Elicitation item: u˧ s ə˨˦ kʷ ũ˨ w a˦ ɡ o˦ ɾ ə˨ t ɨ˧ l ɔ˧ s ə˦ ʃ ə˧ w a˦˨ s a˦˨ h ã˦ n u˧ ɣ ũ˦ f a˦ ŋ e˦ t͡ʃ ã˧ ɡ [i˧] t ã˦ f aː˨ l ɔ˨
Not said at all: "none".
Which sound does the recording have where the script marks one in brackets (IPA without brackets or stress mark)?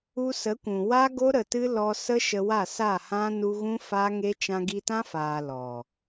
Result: i˧